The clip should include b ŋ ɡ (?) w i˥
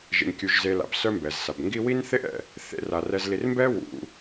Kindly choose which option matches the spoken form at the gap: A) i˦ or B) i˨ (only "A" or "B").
A